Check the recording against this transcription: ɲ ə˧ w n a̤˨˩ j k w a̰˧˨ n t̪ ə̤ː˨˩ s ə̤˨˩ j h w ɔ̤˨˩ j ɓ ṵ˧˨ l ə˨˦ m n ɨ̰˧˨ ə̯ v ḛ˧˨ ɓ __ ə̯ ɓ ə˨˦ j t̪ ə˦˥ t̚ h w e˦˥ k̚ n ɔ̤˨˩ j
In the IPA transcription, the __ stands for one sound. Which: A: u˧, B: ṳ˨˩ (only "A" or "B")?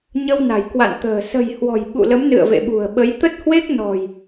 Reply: B